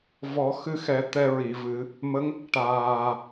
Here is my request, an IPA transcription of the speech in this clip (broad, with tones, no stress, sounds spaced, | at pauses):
v ɔ˨˩˦ x ɨ˧ x ɛ˨˩˦ t̪ ɛ˧ ɹ i˨˩˨ v ɨ˨˩˦ | m ə˧˥ ŋ | ʈ aː˨˩